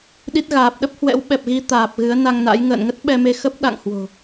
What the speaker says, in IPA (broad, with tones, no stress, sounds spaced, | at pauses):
ɗ i˦˥ t̚ ɣ aː˨˩ p̚ ɗ ə˦˥ p̚ h w ɛ̰˧˥ w ɓ ɛ˨˩ p̚ ɣ i˧ t̪ aː˨˩ p̚ ɣ ɨ˨˦ ə̯ n a˧ ŋ n a̰˧˥ j ŋ ə̰ː˧˨ n ŋ ə˦˥ t̚ ɓ ɛ˧ m e˧ x ə˦˥ p̚ ɗ a̰˧˨ ŋ h w o̤˨˩